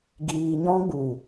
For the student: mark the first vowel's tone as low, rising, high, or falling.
low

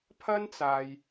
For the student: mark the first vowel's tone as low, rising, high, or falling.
high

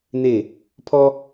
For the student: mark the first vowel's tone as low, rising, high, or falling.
falling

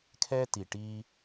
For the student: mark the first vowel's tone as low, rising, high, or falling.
high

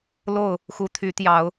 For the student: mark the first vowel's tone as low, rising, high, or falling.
falling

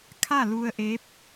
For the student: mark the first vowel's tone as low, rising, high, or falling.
falling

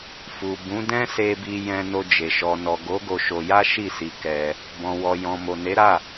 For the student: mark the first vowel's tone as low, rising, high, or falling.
low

